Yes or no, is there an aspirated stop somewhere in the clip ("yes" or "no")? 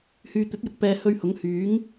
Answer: no